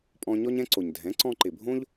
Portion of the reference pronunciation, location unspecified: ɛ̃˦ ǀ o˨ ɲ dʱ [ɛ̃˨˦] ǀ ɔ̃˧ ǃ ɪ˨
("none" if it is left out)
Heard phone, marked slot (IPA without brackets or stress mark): ɛ̃˨˦